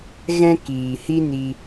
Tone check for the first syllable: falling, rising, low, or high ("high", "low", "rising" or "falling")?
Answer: high